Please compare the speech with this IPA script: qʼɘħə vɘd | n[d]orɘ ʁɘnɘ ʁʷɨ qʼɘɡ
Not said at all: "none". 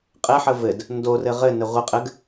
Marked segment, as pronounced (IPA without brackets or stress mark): d